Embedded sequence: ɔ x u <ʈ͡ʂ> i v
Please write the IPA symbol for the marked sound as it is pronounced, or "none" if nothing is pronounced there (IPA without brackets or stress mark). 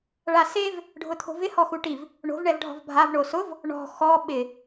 ʈ